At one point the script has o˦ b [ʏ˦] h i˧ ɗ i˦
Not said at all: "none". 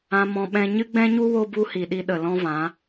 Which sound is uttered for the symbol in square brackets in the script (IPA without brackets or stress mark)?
u˦